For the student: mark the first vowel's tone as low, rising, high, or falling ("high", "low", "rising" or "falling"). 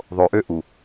low